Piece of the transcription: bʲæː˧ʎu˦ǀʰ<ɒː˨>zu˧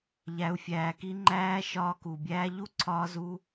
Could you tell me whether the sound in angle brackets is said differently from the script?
yes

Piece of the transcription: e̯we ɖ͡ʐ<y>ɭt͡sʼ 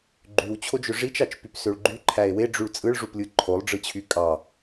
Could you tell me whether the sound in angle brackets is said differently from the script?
no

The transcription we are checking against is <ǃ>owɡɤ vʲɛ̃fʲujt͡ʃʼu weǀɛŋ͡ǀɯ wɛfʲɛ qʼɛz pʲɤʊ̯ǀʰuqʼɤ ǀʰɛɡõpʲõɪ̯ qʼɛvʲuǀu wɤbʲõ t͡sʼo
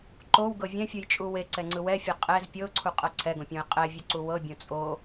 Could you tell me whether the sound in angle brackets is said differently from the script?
no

